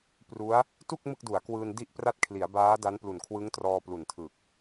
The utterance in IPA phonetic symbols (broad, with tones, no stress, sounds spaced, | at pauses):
p r u˦˥ a̯ | t u˥˩ k̚ m ɯ˥˩ k̚ d u˩˦ a̯ k w ɯː˧ n d i˥˩ ʔ p r a˥˩ t̚ kʰ l i˩˦ a̯ b aː˦˥ d a˦˥ n p l u˨˩ n kʰ w ɯ˦˥ ŋ t r ɔː˧ p l u˨˩ n tʰ ɯ˨˩ k̚